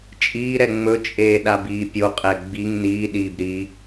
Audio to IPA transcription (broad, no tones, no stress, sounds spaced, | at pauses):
t͡ʃʼ iː ɾ ɛ ŋ͡m ɵ t͡ʃʼ eː ɗ a b iː pʲ o qʼ ɛ ɡ͡b i ŋ n iː ɗ iː b ɾ i